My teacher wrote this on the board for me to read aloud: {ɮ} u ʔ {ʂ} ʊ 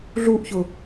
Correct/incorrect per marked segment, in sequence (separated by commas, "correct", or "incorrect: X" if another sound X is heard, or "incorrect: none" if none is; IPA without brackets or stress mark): correct, incorrect: ç